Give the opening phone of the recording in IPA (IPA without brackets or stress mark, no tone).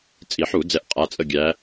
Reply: t͡sʼ